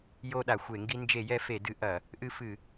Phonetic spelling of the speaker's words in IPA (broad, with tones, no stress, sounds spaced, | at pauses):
j o˧ ɗ a˩ xʷ e˧˩˧ ŋ ɡ i˧ n d͡ʒ e˧˩˧ j ɛ˧ f e˧˩˧ d ɨ˧˩˧ ʔ ɐ˧˩˧ | ʔ ɨ˧ f ɨ˧˩˧